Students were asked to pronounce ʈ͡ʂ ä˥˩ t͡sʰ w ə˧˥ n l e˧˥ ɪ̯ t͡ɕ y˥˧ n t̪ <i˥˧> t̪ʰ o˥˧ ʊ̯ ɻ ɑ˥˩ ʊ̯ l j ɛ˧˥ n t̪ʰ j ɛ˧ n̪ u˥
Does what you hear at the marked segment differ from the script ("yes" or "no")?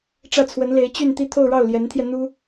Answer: no